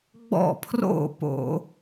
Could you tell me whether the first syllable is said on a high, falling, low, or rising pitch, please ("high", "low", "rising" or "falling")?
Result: falling